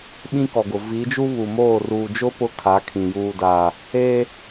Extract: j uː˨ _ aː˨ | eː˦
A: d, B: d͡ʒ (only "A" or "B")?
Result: A